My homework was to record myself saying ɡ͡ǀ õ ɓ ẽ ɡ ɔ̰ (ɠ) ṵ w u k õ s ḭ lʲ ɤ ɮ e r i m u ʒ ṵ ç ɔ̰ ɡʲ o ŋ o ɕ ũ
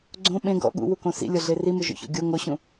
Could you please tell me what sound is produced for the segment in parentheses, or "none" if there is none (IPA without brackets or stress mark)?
ɠ